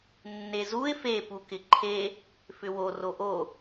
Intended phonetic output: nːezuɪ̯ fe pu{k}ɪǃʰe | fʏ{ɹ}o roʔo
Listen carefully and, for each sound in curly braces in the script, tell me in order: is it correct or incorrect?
correct, incorrect: w

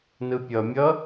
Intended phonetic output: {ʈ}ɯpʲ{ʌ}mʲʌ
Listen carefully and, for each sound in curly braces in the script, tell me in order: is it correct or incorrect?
incorrect: n, correct

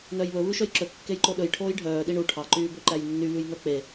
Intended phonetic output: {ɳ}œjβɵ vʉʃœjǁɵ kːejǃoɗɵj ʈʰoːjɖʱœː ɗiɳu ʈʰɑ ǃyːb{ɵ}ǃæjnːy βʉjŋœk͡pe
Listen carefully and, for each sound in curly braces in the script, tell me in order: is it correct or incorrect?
incorrect: n, incorrect: ø

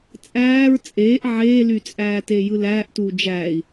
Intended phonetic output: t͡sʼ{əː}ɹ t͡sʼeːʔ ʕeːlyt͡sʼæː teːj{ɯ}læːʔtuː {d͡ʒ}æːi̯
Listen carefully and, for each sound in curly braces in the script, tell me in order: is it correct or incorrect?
incorrect: æː, correct, correct

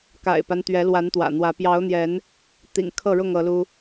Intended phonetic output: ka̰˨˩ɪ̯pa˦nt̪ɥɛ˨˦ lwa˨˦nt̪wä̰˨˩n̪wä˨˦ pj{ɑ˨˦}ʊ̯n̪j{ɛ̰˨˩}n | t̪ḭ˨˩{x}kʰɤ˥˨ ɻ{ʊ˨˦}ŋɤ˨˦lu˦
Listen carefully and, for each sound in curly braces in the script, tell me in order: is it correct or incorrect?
correct, incorrect: ɛ˨˦, incorrect: ŋ, incorrect: ʊ˥˨

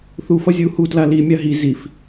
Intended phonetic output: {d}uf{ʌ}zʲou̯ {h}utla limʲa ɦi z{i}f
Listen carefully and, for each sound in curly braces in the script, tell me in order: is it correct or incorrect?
incorrect: θ, correct, correct, correct

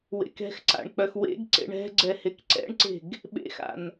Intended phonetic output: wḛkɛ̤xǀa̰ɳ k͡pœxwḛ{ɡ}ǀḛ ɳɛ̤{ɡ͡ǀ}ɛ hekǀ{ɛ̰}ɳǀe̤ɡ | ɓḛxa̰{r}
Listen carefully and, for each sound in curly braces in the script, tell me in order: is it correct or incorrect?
correct, correct, correct, incorrect: n

